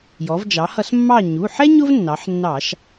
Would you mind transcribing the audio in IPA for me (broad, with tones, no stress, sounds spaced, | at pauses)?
j ɔ˩˧ v d͡ʒ ɑ˩˧ h ʌ˧˩˧ s mː ɑ˦˨ ɲ u˩˧˩ ħ ɛ˥ ɲ ʊ˥ v nː ɑ˩˧ ħ nː ɑ˧˩˧ ʃ